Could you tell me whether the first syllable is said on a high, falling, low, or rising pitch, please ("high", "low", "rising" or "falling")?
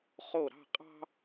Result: falling